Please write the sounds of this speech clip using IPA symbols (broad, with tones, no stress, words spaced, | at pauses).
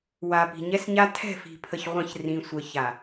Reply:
wa˨pi̤˨ɲɛ˦sɲa˦ tʰɛ̤˦˨fi̤˨pʰə˨ç ʁʷɐ̃˦˨ç rĩ˨sʷə˨ça˨